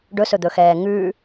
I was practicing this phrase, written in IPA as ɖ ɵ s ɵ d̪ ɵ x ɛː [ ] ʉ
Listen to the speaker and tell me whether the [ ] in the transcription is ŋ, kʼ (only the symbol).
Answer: ŋ